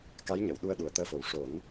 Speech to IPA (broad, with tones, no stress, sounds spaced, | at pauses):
k a˧˥ j ɲ ə˨˩˨ w ɗ u˧ ə̯ ɗ u˨˩ ə̯ t̪ əː˧ f o˨˩ w ʂ o˨˩˦ n